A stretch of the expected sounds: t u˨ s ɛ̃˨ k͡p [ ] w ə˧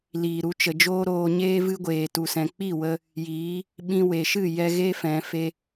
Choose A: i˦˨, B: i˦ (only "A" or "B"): A